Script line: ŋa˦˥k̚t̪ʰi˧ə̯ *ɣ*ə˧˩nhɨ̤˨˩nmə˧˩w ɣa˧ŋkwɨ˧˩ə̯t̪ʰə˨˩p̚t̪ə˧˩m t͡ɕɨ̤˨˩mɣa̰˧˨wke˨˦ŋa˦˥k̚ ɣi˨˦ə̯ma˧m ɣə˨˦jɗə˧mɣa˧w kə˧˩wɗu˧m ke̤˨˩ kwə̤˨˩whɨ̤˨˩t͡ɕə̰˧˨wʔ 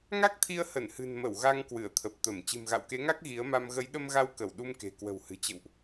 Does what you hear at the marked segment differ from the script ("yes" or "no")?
yes